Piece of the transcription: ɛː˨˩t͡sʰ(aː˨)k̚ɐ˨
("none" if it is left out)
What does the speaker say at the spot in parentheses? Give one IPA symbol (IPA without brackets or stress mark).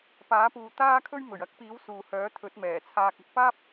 aː˧